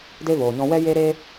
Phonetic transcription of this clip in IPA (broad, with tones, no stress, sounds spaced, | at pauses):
d e˦ v oː˨ ɲ ɔ̃˧ w ɛ˦ j e˦ ɾ eː˦